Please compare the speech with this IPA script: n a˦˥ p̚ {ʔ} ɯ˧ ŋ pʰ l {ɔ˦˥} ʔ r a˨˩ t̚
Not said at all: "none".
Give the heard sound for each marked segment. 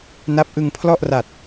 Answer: ʔ, ɔ˥˩

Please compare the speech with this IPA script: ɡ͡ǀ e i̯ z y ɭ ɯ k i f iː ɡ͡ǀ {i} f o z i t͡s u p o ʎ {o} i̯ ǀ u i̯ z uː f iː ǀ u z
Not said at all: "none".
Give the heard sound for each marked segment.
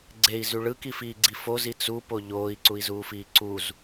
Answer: i, oː

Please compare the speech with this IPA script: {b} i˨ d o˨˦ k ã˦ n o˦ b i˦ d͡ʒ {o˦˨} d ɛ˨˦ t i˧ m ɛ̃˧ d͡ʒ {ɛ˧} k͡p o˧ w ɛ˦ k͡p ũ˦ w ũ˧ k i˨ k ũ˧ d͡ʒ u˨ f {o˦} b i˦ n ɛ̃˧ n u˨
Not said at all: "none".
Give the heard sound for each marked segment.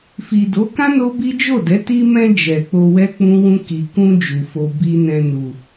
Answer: f, o˦˨, ɛ˨, o˧

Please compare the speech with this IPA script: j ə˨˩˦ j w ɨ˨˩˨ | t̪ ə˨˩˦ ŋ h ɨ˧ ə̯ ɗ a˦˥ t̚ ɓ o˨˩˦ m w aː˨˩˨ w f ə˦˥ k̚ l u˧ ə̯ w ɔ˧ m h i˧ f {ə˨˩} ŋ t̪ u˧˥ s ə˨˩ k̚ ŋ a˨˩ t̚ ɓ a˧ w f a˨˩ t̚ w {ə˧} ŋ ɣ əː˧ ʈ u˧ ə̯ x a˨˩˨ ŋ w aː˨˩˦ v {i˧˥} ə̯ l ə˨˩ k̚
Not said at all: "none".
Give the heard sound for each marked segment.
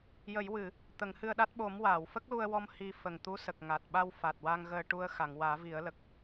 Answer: ə˨˩, a˧, i˨˩˦

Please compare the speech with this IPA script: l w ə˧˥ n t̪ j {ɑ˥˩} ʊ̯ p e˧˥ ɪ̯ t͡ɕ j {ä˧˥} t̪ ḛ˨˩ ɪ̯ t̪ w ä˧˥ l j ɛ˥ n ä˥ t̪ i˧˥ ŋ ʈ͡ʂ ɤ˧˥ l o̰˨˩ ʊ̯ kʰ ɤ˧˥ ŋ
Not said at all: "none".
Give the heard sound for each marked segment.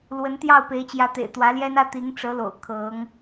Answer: ɑ˥˩, ä˧˥

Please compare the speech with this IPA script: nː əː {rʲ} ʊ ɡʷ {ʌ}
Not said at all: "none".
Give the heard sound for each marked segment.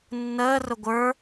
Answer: r, ə˞

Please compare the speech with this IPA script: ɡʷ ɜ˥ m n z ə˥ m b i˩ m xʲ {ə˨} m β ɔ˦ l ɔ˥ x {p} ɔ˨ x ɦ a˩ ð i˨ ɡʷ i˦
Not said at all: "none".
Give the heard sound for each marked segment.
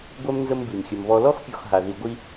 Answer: ə˨, pʲ

